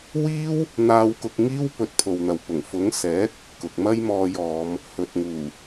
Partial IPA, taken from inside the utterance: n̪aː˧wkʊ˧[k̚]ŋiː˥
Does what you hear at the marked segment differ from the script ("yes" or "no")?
no